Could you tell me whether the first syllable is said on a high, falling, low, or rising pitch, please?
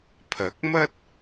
rising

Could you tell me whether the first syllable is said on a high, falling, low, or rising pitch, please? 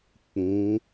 rising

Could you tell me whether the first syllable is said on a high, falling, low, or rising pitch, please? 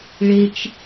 high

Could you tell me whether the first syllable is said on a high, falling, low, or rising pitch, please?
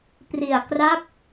low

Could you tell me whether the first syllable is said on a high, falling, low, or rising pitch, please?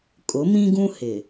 rising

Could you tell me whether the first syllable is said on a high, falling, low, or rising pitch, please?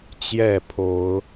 falling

